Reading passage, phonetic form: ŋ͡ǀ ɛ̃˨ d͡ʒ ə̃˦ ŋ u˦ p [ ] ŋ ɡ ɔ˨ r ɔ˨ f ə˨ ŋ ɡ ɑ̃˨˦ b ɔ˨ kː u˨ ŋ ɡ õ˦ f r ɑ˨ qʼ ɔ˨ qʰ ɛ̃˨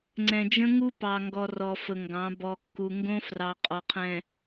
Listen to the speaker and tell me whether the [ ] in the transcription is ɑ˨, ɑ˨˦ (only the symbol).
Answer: ɑ˨